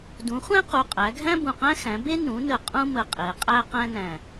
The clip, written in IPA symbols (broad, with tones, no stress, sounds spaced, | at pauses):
d ũ˩˥ χʷ æ̃˥ q u˩˧˩ qʼ æ˩˥ ɡʱ æ̃˥ b ũ˧˩ q æ̃˥ x æ̃˩˥ b e˥ n ũ˩˥ n ə˧˩ qʼ ũ˥ m ə˧˩ qʼ e˩˥ qʼ æ˥ q æ̃˥ n æ̃˧˩